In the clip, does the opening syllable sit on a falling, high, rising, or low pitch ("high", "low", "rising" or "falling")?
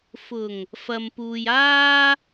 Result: low